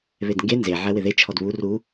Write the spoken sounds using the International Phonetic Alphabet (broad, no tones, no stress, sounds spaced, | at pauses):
β e d ŋ ɡ e n z e ʕ ɛ w ɪ ð e t͡ʃʰ ɔ d β u r u